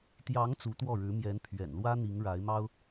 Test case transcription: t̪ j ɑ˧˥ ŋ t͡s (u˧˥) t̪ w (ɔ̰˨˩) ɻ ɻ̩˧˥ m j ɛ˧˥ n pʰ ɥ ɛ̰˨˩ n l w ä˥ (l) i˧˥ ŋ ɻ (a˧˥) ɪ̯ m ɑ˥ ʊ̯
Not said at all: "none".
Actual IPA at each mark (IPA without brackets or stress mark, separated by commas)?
u˧˥, ɔ˥˩, n̪, a˧˥